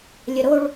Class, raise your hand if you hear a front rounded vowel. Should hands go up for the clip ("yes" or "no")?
no